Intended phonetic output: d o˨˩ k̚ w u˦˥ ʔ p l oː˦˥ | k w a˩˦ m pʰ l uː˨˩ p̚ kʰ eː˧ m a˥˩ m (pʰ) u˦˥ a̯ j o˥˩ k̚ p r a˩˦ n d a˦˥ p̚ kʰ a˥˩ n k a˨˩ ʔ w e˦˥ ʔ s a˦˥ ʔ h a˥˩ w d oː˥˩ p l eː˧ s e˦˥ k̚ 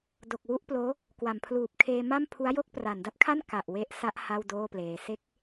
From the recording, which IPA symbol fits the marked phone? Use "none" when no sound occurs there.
pʰ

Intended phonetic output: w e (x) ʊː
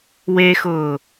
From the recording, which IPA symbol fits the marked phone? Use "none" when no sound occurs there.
x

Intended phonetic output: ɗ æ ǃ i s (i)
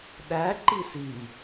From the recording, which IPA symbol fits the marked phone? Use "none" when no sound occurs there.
i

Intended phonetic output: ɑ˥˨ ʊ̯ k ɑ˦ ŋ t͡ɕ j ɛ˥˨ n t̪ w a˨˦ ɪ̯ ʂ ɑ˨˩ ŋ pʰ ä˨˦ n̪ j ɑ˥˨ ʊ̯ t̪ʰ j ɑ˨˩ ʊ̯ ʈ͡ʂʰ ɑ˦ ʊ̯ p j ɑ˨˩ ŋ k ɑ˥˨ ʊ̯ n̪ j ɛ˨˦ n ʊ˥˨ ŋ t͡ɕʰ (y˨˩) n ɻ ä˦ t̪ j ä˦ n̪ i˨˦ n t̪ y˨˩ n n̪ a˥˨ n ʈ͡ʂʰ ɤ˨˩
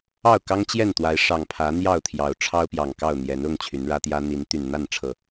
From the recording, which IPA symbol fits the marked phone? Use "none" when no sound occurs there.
y˨˦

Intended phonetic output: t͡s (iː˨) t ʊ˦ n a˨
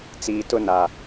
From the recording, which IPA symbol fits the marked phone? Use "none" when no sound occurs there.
iː˨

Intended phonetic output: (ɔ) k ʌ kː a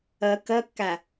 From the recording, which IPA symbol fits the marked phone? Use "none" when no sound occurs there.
ʌ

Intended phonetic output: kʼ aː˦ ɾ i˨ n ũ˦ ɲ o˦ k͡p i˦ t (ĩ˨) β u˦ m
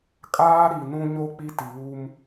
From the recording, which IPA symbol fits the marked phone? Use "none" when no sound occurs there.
i˨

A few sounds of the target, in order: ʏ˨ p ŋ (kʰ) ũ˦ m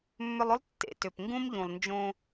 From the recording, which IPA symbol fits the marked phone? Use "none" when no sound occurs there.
ɡ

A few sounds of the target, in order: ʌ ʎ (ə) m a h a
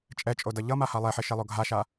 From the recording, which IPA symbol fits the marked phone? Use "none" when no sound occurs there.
ʌ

